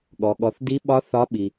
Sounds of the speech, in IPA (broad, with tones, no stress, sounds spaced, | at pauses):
ɠ ɔ˩ ɠ ɔ˩ θ d i˨˦ ɓ ɒ˨˦ θ ɒ˨˦ ɓ i˩